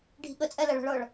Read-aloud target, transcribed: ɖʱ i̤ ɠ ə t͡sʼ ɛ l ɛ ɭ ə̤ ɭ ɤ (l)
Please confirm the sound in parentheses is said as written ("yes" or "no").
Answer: no